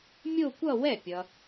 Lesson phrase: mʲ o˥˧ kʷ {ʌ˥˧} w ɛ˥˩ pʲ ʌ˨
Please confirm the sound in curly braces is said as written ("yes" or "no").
yes